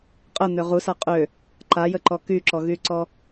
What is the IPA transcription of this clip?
qʼ ə n̪ ø ʁ u s a qʼ ø | ǃ a j ə ǃ ɔ k y ǁ ɔ ɣ y ǀ ɔ

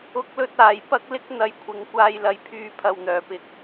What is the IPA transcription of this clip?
ʊ˨˥ k̚ l ɵ˧ t̚ aː˨˩ j p ɐ˧ k̚ l ɪ˥ k̚ n̪ ɐ˨˧ j kʷʰ ɪ˨ ŋ kʷ aː˨˧ j l ɐ˨ j pʰ yː˨˧ pʰ ɐ˨ w n̪ œː˨˩ p ɪ˨˥ k̚

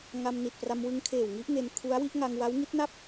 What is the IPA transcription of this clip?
ŋ a˧ m n i˨˩ t̚ p r a˧ m w ɯ˦˥ ŋ kʰ eː˨˩ w ŋ i˦˥ ʔ ŋ e˧ n kʰ u˦˥ a̯ w i˥˩ ʔ ŋ a˧ ŋ w a˦˥ w ŋ i˦˥ t̚ n a˥˩ p̚

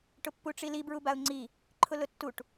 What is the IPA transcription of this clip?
ʈ ʊ pː u ʈ͡ʂ i l i b ɹ u b a ʊ̯ ŋ͡ǀ i | ǃʰ ʊ l ʊ tː u ʈ

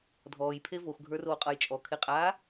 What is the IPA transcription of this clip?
dʱ ɔː j pʰ e v o x ɡʱ ə˞ r oː qʼ ʌ j t͡ʃʼ ɔ kʰ e qʼ aː

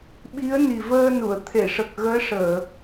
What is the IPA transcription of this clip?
ɓ i˧˥ ə̯ n i˨˩ v əː˧ n u˨˩˨ ə̯ t̪ʰ e˨˩˨ ʂ ə˨˩ k̚ ɣ əː˧˥ ʂ əː˨˩˨

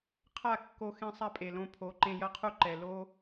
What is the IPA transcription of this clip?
qʰ a˦˨ kː o˧ x ẽ˧ sˤ a˦ pʼ e˨ l õ˧ pʰ o˨˦ ǃ ẽ˧ j ɐ˦ qʰ u˦ ǃ ɛ˨ l o˦

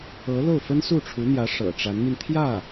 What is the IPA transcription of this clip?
ɤ˧˥ l o˥˩ ʊ̯ f ə˥ n s u˥˩ ʈ͡ʂʰ u˧˥ n̪ j ä˧˥ ʂ ɤ̰˨˩ ʈ͡ʂ a˧˥ n m i˧ n t̪ʰ j ä˥˩

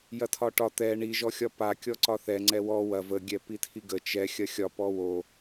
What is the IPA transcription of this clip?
j ɐ tʰ ɒ ʈ ɒ t̪ ɛ ɳ i ʒ ɔ xʲ ɒ p a kʲ ɔ ǀ ɒ θ ɛ ŋ͡ǀ ɛ w ɔ w ɐ v ə ɡʲ ɛ p i tʰ i ɡ ə t͡ʃ ɛ xʲ ɐ xʲ ɒ p ɔ w o

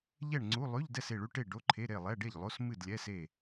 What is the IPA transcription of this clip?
ʎ ɛ˥˨ ɳ ŋ͡ǀ u˧˥˧ lˠ ʉ˧˥˧ ʎ d ɛ˥˨ s e˥˨ ɭ ʉ˧˥˧ ʈ e˥˨ ɖ o˧˥˧ ǃʰ e˧˥˧ ɾ e˥˨ lˠ ɛ˧˥˧ ɖ e˥˨ ʎ lˠ o˧˥˧ s m ɨ˥˨ d lʲ ɛ˧˥˧ s e˥˨

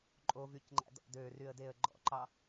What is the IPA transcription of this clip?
ǃʼ o v y c ŋ͡ǃ æ̰ d ɔ̰ d ø r y ə̯ d e ə̯ ɡ͡ǃ ɔ̰ ǃ ɑ

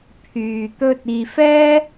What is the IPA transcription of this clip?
pʰ yː˨ t̪ ɵ˧ t̚ iː˨ f ɛː˥

